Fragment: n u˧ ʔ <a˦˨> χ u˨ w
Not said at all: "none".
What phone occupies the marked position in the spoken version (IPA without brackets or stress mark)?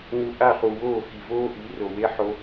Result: a˦˨